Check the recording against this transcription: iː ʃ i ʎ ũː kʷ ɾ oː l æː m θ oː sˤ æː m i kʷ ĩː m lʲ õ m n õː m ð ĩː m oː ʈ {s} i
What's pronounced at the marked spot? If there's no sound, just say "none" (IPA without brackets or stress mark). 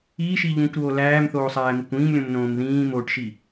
ʃ